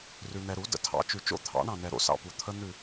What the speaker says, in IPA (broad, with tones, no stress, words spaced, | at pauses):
rʉ˨n̪ɛ˨ ɾu˨˩˦ də̰˨tʰɑ̰˨˩˦t͡ʃʉ˨ t͡ʃo̰˦˨t̪ʰɑ̰˨˩˦ ɳɑ̃˦˨nɛ˨ ɾo̰˦˨sɑ̰˦˨pu˨ t̪ʰə˦˥ n̪ʉ˦˨